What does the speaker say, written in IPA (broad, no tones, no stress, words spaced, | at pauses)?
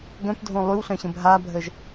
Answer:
ɡœ̃pdʱõ lˠywɬœ̃ɕə̃b ɦabʱəʒ